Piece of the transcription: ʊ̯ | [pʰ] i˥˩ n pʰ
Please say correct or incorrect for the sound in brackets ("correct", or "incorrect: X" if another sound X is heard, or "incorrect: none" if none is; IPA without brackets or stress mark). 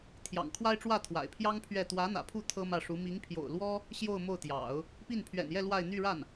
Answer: incorrect: p